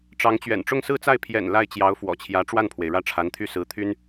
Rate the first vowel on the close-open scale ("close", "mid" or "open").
open